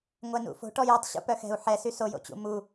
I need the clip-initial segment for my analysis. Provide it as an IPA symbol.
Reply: ŋʷ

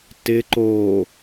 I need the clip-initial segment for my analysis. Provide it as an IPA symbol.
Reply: t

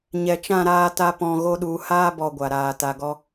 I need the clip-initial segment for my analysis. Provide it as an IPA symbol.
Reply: ɲ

